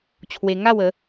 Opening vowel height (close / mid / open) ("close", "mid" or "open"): mid